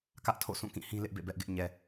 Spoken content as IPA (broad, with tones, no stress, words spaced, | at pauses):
kä˦ʔtʰo̰˦˨ sũ˦˨kĩ˦˨hĩ˦ lɪ˦ʔbḛ˦˨ bɛ˦ʔɡɪ˦ʔ ɲɛ˨